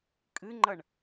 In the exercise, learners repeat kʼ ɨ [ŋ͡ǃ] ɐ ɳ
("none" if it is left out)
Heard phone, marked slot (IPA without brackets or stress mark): ŋ͡ǃ